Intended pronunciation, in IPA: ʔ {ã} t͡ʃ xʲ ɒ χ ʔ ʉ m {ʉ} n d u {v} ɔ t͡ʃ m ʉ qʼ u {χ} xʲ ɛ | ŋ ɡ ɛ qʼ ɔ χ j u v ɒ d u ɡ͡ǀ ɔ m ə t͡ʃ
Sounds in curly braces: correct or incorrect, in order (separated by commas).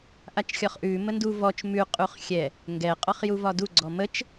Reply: incorrect, incorrect, correct, correct